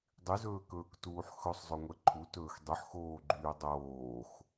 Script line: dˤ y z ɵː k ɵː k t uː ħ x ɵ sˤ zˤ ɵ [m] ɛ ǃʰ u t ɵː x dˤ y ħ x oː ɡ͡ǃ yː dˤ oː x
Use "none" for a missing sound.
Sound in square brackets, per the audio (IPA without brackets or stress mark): ŋʷ